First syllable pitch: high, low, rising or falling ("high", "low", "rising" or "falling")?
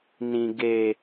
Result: high